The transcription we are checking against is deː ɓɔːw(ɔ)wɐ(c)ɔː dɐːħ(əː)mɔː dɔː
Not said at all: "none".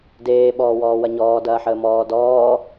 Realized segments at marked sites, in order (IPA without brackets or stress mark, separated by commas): ɔː, ɲ, əː